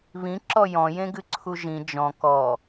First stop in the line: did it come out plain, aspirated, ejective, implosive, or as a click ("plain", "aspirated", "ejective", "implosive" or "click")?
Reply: click